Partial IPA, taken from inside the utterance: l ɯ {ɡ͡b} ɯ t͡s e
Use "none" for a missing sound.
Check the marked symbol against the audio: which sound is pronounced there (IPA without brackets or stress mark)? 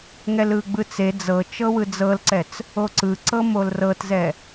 ɡ͡b